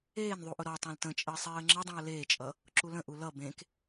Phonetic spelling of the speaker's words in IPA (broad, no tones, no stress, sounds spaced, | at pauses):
eː n ðˤ u ʔ ʊ ɾ ɔ tˤ ẽ l t ə̃ t͡ʃʼ əː sˤ eː ə̯ ŋ͡ǁ ə dˤ ũ ə̯ l eː t͡ʃʼ ʌ | ǁ u l ə̃ ʔ u l ʌ b ẽ k